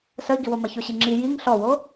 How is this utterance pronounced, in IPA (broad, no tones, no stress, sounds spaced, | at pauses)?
s ə i̯ ɡ i w o m ɐ ç o ɕ i ŋ͡ǁ i j i ŋ ɬ ɔ w o